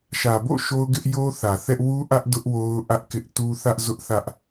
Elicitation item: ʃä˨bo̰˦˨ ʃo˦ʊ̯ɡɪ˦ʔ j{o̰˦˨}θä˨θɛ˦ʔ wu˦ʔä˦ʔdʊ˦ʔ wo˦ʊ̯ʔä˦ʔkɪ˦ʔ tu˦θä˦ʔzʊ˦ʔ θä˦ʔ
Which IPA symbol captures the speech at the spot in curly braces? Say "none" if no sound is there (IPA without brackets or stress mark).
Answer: o˦